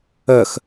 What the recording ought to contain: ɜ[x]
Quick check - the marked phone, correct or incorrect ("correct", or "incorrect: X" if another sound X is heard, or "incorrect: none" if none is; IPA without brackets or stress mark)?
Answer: correct